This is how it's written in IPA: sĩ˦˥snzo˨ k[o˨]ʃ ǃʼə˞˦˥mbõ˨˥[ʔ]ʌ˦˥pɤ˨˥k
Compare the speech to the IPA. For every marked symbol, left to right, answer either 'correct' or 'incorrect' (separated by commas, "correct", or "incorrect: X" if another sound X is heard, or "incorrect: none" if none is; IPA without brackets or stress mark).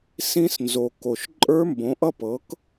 correct, correct